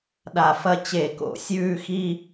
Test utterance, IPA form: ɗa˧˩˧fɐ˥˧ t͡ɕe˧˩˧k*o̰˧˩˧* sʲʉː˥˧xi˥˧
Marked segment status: correct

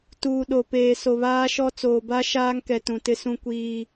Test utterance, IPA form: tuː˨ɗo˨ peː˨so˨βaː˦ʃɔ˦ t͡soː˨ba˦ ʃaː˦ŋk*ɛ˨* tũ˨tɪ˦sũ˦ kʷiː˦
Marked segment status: correct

